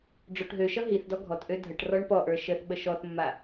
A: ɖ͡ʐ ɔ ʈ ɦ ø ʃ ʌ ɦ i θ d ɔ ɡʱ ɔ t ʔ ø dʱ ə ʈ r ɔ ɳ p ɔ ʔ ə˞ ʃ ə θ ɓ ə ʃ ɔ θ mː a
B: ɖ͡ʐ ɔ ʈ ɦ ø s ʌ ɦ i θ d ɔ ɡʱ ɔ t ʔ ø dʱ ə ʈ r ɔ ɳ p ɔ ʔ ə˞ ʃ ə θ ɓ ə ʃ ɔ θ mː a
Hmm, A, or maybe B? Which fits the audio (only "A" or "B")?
A